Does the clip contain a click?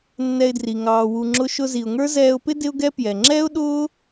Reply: yes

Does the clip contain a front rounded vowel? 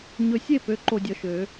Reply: yes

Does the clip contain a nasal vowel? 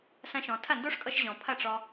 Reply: yes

